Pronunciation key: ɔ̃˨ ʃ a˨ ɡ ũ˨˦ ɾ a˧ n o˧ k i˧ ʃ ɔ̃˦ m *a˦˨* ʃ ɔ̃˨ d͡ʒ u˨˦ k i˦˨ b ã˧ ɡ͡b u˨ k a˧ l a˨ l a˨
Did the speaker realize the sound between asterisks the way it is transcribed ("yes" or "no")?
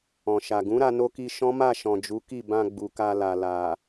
yes